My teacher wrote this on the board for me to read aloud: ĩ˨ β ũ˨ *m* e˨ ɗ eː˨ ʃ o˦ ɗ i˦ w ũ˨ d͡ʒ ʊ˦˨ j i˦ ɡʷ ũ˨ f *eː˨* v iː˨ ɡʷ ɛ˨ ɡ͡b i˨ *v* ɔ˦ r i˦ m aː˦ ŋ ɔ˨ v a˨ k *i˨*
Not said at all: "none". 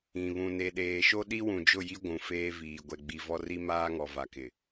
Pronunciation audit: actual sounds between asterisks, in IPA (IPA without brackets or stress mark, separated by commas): n, eː˦, v, ɪ˨